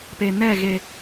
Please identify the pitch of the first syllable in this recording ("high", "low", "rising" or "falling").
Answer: low